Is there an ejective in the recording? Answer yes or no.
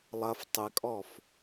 yes